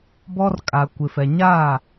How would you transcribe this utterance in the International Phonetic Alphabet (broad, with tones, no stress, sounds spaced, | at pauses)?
b ɔ˦ r kʼ a˨ kʷ ɪ˨ f ɛ˨ ɲ a˦˨